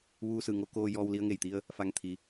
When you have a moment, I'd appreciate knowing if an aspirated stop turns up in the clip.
yes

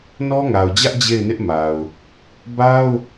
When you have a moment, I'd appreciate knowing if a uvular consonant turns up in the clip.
no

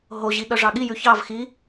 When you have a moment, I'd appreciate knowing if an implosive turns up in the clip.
yes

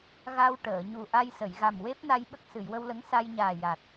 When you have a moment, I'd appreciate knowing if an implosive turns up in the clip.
yes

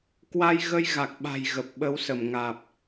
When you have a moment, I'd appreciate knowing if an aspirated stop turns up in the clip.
no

